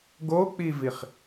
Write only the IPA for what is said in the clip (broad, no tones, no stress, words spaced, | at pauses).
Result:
ɡok͡piviχ